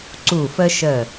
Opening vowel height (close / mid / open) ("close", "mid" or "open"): close